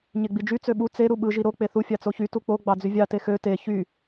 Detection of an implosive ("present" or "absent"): present